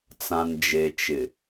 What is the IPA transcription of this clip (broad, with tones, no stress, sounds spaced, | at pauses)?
t͡s ã˨ n d͡ʒ e˨ t͡ʃ ɪ˨